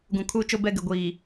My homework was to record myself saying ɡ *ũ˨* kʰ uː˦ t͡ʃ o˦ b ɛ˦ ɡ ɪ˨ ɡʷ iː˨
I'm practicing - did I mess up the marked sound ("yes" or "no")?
no